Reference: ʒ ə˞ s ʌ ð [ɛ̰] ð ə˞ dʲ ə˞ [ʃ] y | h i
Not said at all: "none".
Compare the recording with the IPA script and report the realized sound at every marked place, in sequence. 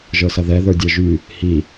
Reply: ɛ, ʒ

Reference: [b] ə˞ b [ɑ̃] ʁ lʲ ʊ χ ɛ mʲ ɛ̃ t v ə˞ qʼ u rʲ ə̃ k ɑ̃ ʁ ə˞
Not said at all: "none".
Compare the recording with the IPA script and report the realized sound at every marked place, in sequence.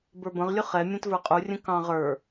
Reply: b, ə̃

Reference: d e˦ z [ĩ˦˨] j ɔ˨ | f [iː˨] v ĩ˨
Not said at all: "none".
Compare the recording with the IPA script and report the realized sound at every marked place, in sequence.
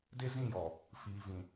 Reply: ĩ˦˨, iː˨

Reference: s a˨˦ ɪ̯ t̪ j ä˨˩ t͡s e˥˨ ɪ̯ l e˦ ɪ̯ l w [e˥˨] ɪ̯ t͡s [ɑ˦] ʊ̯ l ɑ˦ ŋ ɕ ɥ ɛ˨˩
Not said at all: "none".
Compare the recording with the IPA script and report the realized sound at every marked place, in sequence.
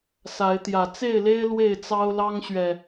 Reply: e˥˨, ɑ˦

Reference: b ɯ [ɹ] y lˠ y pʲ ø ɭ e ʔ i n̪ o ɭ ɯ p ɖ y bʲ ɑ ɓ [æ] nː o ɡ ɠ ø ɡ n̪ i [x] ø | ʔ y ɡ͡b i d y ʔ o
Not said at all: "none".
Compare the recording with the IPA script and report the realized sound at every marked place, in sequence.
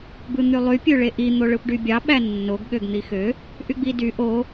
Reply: n̪, æ, x

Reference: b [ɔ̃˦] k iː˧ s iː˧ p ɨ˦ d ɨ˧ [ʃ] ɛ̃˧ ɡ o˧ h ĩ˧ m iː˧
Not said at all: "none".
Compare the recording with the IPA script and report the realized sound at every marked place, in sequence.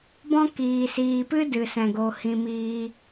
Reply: ɔ̃˦, s

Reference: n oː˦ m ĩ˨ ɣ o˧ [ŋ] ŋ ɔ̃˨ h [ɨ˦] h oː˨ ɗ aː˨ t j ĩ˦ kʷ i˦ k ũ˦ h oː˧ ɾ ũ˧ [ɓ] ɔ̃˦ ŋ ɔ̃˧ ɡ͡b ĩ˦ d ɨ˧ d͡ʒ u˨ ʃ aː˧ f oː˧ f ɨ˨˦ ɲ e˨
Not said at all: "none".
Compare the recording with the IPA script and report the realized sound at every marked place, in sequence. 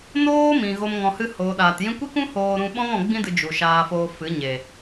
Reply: m, ɨ˧, ɓ

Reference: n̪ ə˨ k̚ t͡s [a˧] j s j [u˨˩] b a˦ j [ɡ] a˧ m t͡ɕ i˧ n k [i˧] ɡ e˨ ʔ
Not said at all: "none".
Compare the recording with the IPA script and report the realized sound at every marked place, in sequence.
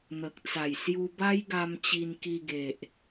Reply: a˨˩, u˧, ɡ, i˧

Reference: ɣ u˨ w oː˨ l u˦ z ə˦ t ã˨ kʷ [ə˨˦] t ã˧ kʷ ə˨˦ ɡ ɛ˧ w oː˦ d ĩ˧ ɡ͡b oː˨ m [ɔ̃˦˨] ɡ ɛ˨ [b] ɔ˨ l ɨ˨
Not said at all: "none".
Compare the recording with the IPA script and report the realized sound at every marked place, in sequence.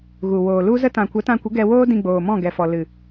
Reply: ə˨˦, ɔ̃˦˨, f

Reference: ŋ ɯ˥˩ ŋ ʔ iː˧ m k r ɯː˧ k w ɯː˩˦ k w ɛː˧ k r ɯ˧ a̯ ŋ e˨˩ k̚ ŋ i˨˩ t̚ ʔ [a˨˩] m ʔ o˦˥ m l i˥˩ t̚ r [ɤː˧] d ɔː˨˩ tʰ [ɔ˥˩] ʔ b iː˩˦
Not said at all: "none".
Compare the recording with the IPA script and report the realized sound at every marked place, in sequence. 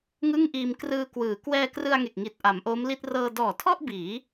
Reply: a˩˦, ɤː˧, ɔ˥˩

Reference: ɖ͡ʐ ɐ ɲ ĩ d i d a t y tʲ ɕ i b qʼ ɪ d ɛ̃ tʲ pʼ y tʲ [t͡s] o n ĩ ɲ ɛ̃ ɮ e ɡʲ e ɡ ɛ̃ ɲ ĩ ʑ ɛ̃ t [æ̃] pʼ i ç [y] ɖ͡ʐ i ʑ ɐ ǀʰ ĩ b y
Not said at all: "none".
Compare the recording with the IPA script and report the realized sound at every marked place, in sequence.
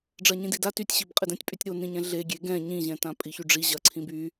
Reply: ɾ, ã, y

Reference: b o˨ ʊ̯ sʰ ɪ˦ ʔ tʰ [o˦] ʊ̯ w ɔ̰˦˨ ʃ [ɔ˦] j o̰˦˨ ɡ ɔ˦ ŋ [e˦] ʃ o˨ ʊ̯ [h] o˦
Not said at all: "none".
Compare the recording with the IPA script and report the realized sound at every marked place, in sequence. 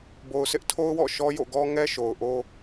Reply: o˦, ɔ˦, ɛ˦, ʔ

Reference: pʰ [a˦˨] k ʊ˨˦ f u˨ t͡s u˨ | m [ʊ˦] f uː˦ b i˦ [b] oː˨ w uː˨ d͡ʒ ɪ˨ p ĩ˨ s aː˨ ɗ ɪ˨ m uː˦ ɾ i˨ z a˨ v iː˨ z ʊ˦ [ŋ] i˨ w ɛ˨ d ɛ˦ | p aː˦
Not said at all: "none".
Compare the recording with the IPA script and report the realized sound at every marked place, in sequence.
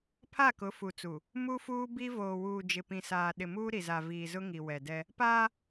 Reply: a˦˨, u˦, v, ŋ

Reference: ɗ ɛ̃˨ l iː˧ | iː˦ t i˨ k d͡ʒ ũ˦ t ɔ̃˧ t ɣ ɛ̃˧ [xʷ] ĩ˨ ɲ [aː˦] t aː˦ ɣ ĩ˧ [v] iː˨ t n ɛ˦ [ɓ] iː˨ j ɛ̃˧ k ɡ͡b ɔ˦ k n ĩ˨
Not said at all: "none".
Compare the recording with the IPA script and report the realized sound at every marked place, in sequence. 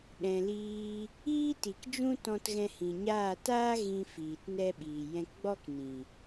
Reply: h, aː˦˨, f, ɓ

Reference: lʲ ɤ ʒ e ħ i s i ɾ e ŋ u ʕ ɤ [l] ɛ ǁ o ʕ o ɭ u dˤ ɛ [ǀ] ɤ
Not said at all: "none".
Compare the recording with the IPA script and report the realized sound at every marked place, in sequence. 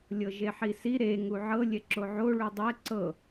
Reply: lʲ, ǀ

